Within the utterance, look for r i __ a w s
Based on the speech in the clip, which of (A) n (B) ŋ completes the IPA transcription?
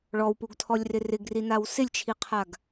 A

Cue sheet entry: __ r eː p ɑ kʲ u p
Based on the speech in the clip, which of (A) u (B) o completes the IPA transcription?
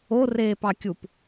B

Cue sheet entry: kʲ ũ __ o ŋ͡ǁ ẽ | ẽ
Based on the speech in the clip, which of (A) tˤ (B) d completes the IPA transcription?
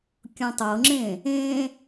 A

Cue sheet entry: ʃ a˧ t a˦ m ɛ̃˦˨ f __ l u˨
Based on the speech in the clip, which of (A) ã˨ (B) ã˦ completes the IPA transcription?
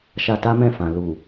A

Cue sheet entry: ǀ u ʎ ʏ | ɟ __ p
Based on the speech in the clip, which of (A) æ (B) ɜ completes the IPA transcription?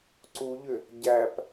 A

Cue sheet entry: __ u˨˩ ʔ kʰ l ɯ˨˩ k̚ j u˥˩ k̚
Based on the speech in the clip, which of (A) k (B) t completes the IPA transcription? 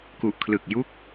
A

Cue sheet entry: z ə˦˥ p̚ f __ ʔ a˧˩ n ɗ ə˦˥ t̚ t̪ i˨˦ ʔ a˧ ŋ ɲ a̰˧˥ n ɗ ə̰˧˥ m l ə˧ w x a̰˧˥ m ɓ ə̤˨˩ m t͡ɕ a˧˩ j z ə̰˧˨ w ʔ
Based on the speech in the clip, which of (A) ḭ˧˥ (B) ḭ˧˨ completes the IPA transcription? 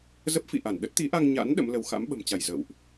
B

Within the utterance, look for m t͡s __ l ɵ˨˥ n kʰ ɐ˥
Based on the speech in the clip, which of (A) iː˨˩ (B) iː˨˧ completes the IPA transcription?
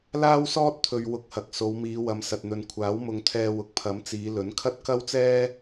B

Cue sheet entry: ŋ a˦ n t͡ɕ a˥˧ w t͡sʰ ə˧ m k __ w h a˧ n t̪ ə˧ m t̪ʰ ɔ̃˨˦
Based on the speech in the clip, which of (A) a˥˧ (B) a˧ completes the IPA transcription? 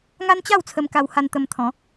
B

